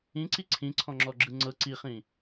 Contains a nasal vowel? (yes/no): yes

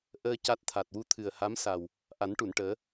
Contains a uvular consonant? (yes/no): no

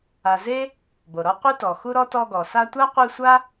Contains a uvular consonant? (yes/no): yes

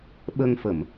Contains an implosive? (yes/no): yes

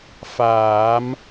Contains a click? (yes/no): no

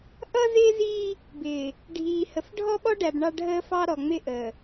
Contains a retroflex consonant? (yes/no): yes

